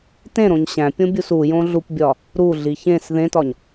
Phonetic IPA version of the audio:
t ẽ ɾ õ ɲ ɕ æ̃ pʲ õ bʲ u s u j õ ɮ u p bʲ ɒ | ɾ u ɮ i ç ẽ s ð ẽ t ɒ ɲ

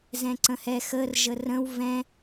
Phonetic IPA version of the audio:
z ɛ̃ ǀ ə̃ h ɛ x ə r ʒ ə r ə̃ w v ɛ̃

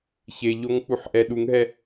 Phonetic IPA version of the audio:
ç e ʎ o ŋ k͡p u ħ ʔ ɛ ɗ u ŋ ɦ ɛ

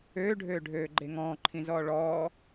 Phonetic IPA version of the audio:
øː ɖʱ øː ɖʱ øː ɡ͡ǃ e ŋ ɔ̃ː ǃʰ ĩ z ɔː ɭ ɔː

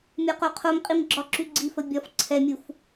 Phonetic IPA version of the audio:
mʲ ɒ q o qʰ o m qʼ i m ɡ͡ǁ ɒ ǁ y ɡ͡ǀ i f ə bʲ ɒ f ǀʰ ɛ mʲ u f

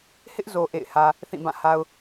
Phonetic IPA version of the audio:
h ɪ˦ ʔ z o˨ ʔ ḛ˦˨ ɪ̯ h ä˦ | θ ĩ˦˨ b ã˦˨ h a˦ ʊ̯

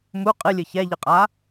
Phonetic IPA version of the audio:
m u qʼ ɨ lʲ ɨ ç ɛ ʎ ɨ qʼ a

